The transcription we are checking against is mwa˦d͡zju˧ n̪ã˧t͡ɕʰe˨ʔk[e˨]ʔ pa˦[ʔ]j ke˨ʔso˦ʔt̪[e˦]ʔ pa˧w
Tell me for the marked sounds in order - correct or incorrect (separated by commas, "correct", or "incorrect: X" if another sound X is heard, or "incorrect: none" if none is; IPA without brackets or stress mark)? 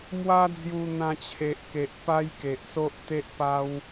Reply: correct, incorrect: none, correct